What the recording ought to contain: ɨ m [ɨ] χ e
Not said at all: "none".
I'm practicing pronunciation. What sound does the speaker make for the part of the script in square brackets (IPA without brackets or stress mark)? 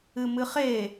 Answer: ɨ